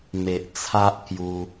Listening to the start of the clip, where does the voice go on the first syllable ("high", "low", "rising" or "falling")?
low